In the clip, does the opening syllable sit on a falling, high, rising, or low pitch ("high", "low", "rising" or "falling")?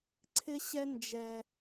high